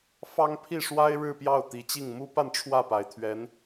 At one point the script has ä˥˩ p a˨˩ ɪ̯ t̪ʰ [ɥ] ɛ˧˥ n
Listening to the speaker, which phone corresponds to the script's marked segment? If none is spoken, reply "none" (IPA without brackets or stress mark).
ɥ